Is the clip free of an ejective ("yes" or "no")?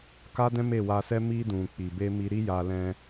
yes